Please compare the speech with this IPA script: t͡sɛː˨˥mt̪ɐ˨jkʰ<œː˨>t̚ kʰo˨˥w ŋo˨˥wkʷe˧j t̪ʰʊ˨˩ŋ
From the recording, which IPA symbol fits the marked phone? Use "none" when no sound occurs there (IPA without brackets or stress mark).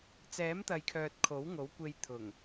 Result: œː˨